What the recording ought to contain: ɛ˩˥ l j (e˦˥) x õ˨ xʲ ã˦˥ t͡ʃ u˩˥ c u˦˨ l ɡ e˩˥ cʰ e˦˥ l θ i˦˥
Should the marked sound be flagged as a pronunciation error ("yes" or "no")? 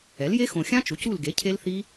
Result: no